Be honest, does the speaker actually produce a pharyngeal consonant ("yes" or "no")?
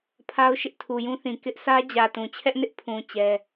no